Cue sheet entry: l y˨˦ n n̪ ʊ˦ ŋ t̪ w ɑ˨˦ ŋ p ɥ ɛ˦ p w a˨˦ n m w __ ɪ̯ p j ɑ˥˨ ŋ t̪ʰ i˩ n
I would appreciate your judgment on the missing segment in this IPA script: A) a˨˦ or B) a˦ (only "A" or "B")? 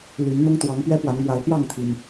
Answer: A